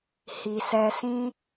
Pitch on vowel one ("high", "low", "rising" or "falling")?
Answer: low